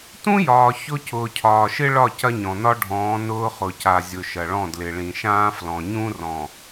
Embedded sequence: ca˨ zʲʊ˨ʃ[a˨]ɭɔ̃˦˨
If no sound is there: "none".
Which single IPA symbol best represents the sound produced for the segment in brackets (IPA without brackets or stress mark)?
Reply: ɐ˨